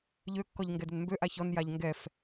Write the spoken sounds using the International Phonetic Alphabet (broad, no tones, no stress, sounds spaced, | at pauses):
ʎ ø kː ɔ ʎ ŋ ɡ ɛ d ɛ n m b ø ʔ a ç ɔ n j a ʎ ŋ ɡ ɛ f